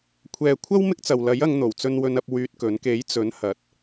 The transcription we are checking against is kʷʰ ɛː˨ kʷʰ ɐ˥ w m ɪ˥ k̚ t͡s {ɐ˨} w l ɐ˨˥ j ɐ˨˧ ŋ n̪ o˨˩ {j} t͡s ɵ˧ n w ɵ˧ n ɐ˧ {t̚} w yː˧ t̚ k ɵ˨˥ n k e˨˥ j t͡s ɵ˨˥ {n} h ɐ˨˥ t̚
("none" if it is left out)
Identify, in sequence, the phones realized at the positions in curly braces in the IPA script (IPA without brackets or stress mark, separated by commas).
ɐ˨, w, p̚, n